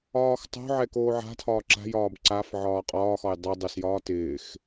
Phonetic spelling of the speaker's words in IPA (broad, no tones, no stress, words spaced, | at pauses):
ɒːxtˤo̤ʕɛ koːʕa̤tʰɒː ǁa̤jɒːb ǀaf ʕɒːqʼɒːxɒj dˤɛ dˤɪsjɒː tɪːx